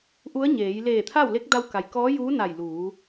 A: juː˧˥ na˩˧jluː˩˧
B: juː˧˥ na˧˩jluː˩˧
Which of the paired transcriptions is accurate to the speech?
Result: B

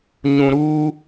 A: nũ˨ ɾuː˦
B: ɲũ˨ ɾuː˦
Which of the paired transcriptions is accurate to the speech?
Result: B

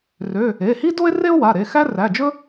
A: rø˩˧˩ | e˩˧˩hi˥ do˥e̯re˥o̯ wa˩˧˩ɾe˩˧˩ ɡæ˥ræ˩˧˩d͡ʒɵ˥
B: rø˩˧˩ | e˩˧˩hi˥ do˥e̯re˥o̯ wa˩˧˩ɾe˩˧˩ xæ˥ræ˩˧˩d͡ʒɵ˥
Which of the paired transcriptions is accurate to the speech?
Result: B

